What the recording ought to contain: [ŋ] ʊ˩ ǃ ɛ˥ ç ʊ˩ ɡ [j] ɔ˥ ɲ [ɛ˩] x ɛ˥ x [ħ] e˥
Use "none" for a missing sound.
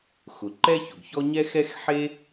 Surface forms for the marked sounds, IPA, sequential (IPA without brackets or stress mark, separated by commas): x, ç, ɛ˥, ħ